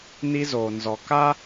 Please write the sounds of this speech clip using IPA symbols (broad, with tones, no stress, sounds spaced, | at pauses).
n i˧ z oː˨ n z ɔ˨ k a˦